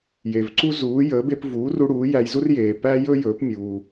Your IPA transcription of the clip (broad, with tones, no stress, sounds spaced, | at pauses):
j e˩ v ǀ u˥ z uː˩˥ j əː˩˥ b e˧ p v uː˩˥ r u˧ ɽ uː˩˥ j æ˧ j z u˥ r j eː˩ p æ˥ j ɵ˥ j ɵː˩˥ p mʲ uː˩